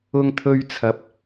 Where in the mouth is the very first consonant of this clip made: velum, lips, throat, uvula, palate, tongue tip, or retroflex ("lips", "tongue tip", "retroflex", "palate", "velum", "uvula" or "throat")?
velum